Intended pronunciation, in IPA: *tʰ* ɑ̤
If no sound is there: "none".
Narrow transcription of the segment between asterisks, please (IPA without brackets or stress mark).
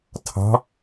tʰ